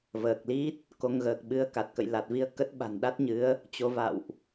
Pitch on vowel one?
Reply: low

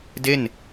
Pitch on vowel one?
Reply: falling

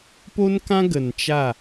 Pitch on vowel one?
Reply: high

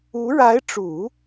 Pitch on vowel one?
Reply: rising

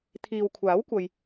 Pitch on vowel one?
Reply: low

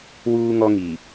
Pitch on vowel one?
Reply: high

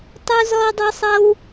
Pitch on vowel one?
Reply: high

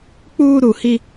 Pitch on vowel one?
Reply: high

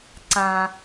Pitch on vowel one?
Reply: low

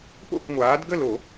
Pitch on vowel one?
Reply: falling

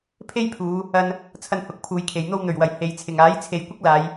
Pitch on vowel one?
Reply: high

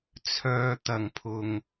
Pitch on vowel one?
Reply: low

